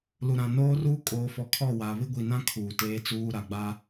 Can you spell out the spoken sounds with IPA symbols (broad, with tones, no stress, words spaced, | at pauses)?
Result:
lu˨ɾã˨noː˦ruː˦ kʼoː˨fɔ˨ kʰɔ˦˨wa˨ βɪ˦ɡʷi˨nã˦ kʰuː˨teː˦t͡suː˦ɾa˨ ɡ͡ba˦